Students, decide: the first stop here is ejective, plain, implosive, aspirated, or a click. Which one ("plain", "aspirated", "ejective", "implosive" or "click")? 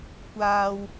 plain